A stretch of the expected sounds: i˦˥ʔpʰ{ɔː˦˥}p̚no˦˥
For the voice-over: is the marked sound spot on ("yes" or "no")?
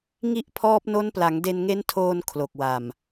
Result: yes